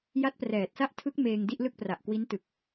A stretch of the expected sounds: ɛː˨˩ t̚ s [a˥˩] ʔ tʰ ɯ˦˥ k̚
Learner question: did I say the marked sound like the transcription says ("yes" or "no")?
yes